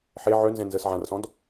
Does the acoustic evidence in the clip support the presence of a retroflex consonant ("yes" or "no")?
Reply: no